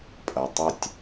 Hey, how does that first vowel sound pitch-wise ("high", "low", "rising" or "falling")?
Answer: low